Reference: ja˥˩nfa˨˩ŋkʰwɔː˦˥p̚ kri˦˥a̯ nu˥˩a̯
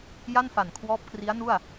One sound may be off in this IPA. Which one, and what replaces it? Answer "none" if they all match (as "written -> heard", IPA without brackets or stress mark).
ŋ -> n